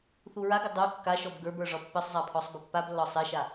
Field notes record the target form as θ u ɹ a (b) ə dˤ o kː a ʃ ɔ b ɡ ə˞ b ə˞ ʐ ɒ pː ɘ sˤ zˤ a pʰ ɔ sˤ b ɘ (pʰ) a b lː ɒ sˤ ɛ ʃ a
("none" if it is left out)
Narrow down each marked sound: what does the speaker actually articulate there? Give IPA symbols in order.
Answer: ɡ, pː

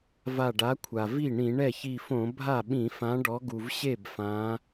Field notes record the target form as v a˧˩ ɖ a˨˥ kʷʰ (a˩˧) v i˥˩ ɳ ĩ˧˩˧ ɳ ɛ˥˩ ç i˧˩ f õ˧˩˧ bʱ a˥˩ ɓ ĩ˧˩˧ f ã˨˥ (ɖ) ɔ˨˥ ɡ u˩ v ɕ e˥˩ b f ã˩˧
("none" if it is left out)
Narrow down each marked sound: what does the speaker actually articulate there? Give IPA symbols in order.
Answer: a˩, ɖ

